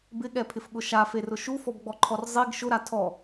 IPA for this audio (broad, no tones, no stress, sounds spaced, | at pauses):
b ɪ ɠ ɛ pʰ ɪ f ɠ ʊ ʃ a f e r ʊ ʃ u f ɔ b ɡ͡b ɔ ǃʰ ɔ r zˤ i ɡ ʃ ʊ ɾ a tʰ ɔ